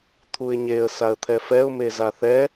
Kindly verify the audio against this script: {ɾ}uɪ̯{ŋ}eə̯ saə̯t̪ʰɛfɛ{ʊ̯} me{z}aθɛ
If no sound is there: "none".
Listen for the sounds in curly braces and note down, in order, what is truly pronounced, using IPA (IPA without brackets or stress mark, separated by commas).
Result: t̪ʰ, ɲ, ʊ̯, z